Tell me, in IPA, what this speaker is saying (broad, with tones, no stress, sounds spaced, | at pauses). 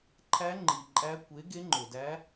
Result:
ǃʰ æ˧˥ ŋ͡ǃ i˩ ǃʼ æ˧˥ kʷ e˩˥ ɡ e˧˥ ŋ͡ǃ o˩ d æ˧˥